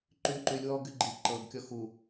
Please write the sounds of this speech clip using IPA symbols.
ǃ yː ǃ y lʲ w ɔː ɡ y ɡ͡ǃ i ǃ ɤ ɡ kʲ ɔ x u

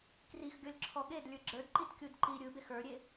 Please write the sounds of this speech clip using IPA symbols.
k r i x ɡʲ ɔ lʲ ǁʰ ɔ ɠ e d lʲ ə˞ ɡ͡ǁ ə˞ d ǃ i t kʲ u d ǃ i ɾʲ ɯ b e x ə˞ ɾʲ e

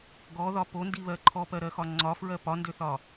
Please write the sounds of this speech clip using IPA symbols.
ɡ ɔ ð ɒ p o n d i β ɜ ǃʰ ɔ p ɜ ɾ ɜ x ɒ ŋ͡ǀ ɒ f ɹ ɜ p ɒ n d ø θ ɒ

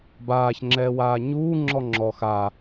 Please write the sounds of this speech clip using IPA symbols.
b aː ç ŋ͡ǁ ɛː w aː ɲ uː ŋ͡ǁ ɔ ŋ͡ǁ ɔ x a

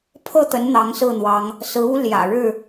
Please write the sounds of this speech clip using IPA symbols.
pʰ ɤ˥˨ t̪ ə˨˦ n n̪ ɑ˨˦ ŋ s ɹ̩˥˨ n̪ w ɑ˨˦ ŋ | s ɹ̩˨˦ u˦ l j ä̰˨˩ ɻ ɻ̩˥˨

